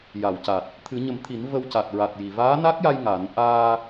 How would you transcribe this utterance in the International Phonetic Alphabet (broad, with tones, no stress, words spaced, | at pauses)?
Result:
ja˨˩˨wca˨˩t̚ | t̪ʰɨ˨˩˦ɲə˨˩˦m t̪ʰi˨˩˦n və˧wca˨˩t̚ɹa˨˩t̚ ji˨˩˨ vaː˧˥na˦˥k̚ja˧j ŋa˨˩˦n ʔaː˧